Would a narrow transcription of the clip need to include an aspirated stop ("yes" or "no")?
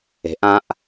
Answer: no